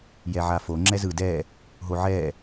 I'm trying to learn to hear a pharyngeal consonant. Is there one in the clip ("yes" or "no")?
yes